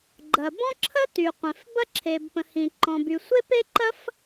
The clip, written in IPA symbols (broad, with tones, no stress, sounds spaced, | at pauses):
ɡ͡ǃ ɐ˩ b ɔ̃˥ ǁʰ ə˥ t y˩ qʷ ẽ˩ f b ɐ˥ ǁʰ e˩ b p ə̃˩ h ĩ˩ ǃ ɔ̃˩ b y˩ sʷ e˥ p e˥ ǃ ɐ˥ f